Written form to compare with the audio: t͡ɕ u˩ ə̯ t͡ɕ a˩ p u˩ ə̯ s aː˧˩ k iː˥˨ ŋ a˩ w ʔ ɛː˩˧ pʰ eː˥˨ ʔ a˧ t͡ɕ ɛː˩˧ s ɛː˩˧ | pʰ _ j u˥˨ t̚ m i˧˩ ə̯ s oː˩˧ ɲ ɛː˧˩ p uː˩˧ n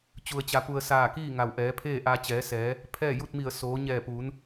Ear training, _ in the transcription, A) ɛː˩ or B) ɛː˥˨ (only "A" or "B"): B